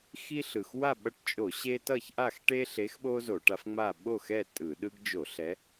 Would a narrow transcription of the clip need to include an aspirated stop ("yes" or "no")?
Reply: no